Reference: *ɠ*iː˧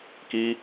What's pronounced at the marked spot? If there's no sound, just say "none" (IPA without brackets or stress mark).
k